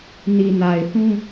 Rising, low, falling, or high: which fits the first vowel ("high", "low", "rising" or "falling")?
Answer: low